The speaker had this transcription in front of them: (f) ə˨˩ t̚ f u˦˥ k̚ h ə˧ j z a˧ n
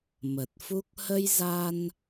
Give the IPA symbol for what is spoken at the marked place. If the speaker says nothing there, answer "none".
m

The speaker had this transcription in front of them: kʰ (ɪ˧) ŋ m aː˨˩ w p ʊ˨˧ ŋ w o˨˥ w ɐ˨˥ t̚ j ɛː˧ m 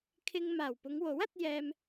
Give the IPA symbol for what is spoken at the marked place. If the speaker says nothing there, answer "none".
ɪ˧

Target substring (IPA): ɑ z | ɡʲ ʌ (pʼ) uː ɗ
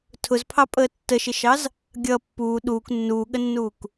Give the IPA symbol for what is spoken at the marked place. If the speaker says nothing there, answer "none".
pː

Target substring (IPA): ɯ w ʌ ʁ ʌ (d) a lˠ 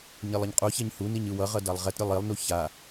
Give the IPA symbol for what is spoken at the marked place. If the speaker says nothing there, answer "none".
d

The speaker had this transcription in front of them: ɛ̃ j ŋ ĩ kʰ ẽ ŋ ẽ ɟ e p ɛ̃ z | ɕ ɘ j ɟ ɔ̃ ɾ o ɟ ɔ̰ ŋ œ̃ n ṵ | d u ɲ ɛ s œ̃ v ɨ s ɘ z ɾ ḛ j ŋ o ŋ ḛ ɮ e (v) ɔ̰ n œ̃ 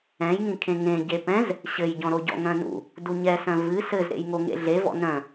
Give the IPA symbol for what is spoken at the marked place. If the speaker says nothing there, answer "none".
v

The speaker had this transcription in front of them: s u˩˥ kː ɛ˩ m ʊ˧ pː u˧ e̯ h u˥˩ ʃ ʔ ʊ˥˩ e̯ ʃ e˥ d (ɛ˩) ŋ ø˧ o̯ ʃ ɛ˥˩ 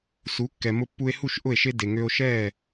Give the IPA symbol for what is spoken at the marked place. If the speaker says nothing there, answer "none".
e˩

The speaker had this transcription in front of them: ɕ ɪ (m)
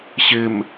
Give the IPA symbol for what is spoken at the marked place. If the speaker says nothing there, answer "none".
m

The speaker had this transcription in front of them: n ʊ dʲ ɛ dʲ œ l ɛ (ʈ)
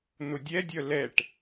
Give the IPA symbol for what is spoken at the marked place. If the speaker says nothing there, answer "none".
ʈ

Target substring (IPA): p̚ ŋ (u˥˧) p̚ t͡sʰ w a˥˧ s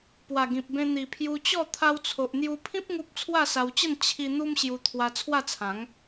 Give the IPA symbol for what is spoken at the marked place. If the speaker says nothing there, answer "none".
u˦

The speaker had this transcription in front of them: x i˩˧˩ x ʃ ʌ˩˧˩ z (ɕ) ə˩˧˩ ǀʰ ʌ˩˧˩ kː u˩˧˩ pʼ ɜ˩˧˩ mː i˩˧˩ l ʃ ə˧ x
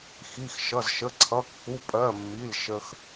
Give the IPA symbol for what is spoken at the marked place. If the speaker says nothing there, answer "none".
ʃ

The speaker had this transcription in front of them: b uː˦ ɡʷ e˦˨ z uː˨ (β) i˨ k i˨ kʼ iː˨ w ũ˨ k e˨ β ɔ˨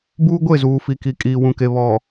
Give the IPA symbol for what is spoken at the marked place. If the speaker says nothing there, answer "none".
f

